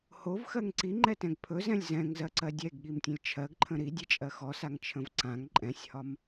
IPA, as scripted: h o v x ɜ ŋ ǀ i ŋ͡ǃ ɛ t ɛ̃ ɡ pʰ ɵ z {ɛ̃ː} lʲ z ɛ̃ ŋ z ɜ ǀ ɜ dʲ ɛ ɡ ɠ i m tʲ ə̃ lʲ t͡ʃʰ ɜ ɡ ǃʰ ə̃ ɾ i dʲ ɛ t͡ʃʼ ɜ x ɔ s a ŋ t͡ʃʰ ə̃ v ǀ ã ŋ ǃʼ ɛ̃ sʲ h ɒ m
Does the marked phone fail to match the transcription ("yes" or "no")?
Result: yes